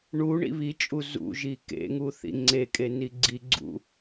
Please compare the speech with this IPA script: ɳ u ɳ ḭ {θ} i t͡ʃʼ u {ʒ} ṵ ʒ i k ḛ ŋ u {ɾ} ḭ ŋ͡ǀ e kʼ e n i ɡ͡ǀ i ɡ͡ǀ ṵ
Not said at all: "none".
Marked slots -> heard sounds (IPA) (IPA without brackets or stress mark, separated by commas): β, z, θ